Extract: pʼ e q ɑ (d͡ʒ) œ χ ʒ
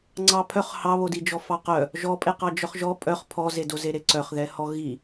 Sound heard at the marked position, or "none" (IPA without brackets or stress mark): d͡ʒ